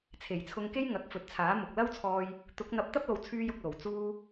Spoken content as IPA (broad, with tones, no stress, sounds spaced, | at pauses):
t͡sʰ e˨˩ j t͡sʰ ʊ˧ ŋ k e˥ j ŋ ɐ˨˥ k̚ f ɵ˨ t̚ t͡sʰ aː˨˥ m ʊ˨ k̚ l ɐ˥ w t͡sʰ ɔː˧ j | t̪ ʊ˨˥ k̚ n̪ ɐ˧ p̚ t̪ ɐ˥ p̚ l o˨ w t͡sʰ yː˧ j ʊ˨ k̚ l o˨˩ w t͡s uː˧